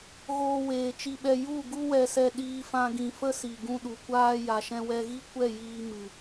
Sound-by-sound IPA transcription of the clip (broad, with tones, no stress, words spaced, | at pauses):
ɣoː˧weː˨t͡ʃi˧ɓɛ˧ ju˦˨ɡu˦ wɛ˧sɛ˧ ɗiː˧fã˧ɡĩ˨ fə˦si˨ɡũ˧ ɗu˨kʷaː˦ ja˨ʃɛ̃˧wɛ˧ɣi˦ kʷɛ˦˨jiː˧ mɨ˨